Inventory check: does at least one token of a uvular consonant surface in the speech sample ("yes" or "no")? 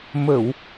no